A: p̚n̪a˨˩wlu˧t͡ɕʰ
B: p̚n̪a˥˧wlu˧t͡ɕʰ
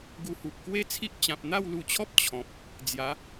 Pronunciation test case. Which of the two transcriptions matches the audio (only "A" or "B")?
B